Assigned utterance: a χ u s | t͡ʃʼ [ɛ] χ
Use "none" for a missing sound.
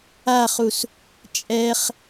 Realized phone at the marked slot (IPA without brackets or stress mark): ɛ